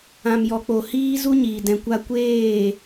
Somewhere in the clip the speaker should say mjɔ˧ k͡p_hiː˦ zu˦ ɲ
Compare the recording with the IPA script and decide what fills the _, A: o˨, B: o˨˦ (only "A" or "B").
A